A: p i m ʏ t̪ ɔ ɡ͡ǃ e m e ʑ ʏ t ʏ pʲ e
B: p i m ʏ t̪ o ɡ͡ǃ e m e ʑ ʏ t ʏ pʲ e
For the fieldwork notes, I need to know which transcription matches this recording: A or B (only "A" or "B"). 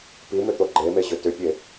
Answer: B